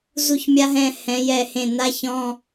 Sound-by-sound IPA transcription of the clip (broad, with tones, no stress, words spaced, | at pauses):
zu˧˩çmʲa˧ɦɛ̃˧˩ hɛ̃˩˧jɛ˧˩hẽ˧˩ na˧ çɔ̃˧˥˧